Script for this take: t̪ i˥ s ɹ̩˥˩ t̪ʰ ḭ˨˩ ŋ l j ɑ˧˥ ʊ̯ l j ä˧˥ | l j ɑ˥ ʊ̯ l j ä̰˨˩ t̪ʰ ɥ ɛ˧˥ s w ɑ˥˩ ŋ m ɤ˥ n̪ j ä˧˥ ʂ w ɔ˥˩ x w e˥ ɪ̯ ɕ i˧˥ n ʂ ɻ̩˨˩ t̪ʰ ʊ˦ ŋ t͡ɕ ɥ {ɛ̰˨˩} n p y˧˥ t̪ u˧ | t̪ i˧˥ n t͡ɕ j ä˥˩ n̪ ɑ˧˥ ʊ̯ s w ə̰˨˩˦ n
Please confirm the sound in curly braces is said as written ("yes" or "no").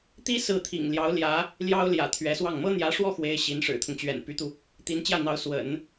yes